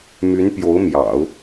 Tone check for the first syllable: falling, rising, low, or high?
rising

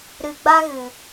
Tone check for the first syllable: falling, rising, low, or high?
low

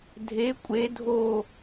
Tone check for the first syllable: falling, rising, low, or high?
rising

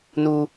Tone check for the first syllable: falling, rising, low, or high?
high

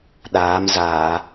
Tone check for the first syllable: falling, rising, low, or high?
rising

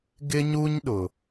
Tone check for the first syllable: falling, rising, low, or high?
high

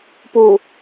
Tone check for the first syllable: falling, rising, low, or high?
low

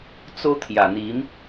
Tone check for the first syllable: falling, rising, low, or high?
high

